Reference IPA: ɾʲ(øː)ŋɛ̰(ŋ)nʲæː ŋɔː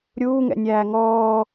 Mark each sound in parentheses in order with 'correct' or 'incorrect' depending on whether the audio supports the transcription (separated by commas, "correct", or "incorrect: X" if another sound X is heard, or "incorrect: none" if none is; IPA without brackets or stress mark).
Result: incorrect: uː, incorrect: none